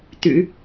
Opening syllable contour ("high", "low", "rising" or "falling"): low